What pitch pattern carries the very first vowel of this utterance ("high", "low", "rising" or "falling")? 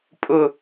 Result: falling